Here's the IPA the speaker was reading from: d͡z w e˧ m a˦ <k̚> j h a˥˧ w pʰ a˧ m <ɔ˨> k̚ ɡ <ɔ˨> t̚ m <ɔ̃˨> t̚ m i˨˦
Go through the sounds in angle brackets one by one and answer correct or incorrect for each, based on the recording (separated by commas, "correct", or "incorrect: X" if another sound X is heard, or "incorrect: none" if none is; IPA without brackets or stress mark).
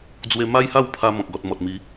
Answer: incorrect: none, incorrect: ɔ̃˨, correct, incorrect: ɔ˨